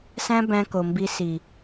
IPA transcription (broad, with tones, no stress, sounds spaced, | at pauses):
s æ̃˦ b æ̃˦ k o˨ m b i˦ s i˨